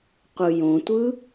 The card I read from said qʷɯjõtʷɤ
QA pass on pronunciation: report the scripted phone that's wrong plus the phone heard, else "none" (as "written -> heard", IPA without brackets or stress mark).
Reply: ɤ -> ɯ